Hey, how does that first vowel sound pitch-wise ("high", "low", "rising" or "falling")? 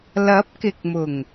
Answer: rising